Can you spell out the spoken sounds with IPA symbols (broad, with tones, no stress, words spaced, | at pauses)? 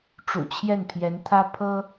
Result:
ʈ͡ʂṵ˨˩t͡ɕʰjɛ˥˩npʰjɛ˧˥nt̪ʰä˥ pʰɤ˥